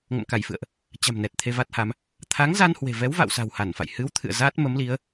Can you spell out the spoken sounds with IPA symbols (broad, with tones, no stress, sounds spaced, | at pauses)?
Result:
ŋ ə̰˧˨ m k a˧˩ j f ɨ̰˧˨ ə̯ ʔ | t͡ɕ a̤˨˩ m n ɛ˨˩ t̚ t̪ʰ e˧ v a˦˥ t̚ h a˨˦ m | t̪ʰ a˨˦ ŋ z a˧ n h w e̤˨˩ v ɛ˨˦ w v a̰˧˨ w s a̤˨˩ w h a˧˩ n f a̰˧˨ j h ɨ˨˦ w t̪ʰ ɨ̰˧˨ ə̯ z a˦˥ t̚ m ə˨˦ m l i˨˦ ə̯